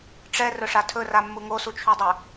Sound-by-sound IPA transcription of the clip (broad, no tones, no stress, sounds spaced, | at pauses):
ʈ͡ʂ ɛ r ɵ ʂ a tʰ ɵ r a mː u ŋ o s u t͡ʃʰ u dˤ œ